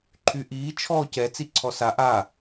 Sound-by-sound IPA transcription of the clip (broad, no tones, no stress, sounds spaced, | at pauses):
ǃʰ y ʔ iː t͡ʃʰ ɔː c ɛ t͡s i ǀʰ ɔ s a ʔ a